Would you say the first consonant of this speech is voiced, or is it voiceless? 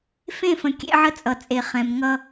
voiceless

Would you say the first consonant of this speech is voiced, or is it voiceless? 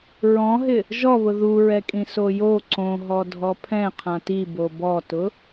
voiced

